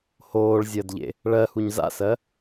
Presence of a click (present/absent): absent